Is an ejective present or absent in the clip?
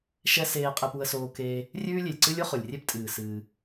present